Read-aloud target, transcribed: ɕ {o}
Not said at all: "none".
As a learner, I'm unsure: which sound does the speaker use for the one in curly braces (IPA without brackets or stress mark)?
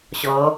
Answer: ɔ